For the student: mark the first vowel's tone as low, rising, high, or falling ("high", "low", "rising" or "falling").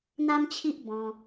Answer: high